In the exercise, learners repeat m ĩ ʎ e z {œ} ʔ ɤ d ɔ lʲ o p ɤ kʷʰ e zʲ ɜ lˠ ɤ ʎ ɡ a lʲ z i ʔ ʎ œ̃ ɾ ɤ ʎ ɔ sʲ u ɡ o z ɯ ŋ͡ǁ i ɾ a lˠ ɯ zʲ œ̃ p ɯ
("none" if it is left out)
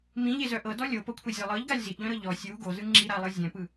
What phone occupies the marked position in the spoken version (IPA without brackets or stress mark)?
œ